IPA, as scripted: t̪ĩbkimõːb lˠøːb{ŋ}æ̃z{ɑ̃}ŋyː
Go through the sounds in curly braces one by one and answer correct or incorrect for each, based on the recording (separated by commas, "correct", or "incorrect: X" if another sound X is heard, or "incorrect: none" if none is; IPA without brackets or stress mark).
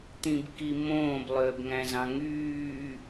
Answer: correct, correct